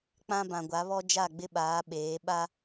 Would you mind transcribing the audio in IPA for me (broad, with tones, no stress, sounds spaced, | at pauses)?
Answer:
k͡p ã˦ b ã˨ ɡʷ a˨˦ β ɔ˦ d͡ʒ a˦˨ ɡ͡b ɪ˦ ɓ aː˨˦ ɓ eː˨˦ ɓ a˦